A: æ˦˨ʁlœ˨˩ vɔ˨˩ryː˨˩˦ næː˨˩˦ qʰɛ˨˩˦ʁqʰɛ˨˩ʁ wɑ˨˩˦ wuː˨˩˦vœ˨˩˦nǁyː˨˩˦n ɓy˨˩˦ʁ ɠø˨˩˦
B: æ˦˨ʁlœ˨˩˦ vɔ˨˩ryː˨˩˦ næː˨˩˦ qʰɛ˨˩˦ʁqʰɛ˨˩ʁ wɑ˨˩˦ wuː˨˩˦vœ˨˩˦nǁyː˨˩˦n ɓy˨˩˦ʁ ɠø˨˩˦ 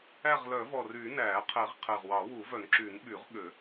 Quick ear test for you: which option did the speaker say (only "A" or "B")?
B